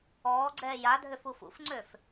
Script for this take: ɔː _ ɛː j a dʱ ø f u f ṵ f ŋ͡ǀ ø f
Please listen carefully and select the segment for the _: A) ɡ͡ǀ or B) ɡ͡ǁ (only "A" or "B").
A